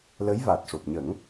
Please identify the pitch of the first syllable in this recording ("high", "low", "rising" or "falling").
rising